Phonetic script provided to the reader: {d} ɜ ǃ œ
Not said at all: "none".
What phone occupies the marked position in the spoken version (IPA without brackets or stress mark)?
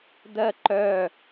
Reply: d